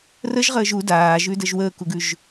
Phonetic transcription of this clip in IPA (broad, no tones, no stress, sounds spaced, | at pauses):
r ə ʒ ʁ əː ʒ u d aː ʒ ʉ d ə ʒ w əː k u ɡ ʉ ʒ